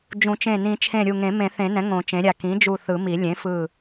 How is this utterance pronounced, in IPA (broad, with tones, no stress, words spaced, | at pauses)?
d͡ʒũ˨˩˦t͡ʃẽ˧˩ nĩ˨˩˦t͡ʃʰẽ˧˩ ɾʲu˧˩ŋẽ˨˩˦ mẽ˨˩˦θẽ˨˩˦nɛ̃˩˥ ŋõ˨˩˦t͡ʃẽ˩˥ɾʲa˧˩ kĩ˩˥d͡ʒu˧˩ θɯ˨˩˦mi˨˩˦ lʲẽ˩˥fɯ˧˩